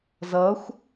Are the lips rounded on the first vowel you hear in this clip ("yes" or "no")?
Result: no